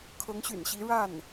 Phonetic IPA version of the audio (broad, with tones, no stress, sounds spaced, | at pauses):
kʰ ɤ˧˥ ŋ ɕ y̰˨˩ n ɕ i˧˥ ɻ a˥˩ n